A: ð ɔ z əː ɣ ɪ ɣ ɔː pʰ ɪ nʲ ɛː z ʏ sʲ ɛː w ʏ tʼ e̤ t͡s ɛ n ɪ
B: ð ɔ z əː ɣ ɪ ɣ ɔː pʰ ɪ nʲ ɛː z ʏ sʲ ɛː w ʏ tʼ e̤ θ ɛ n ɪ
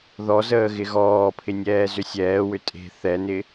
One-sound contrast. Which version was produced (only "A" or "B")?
B